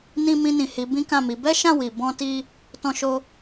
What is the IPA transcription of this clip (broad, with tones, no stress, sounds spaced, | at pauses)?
n ĩ˧ m ĩ˧ n ĩ˨ h i˨˦ b ĩ˦ k ã˦˨ m i˨˦ b ɛ˦ ʃ ã˦˨ w i˨ b ɔ̃˧ t i˦ | t ɔ̃˧ ʃ o˧